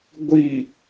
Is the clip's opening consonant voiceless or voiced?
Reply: voiced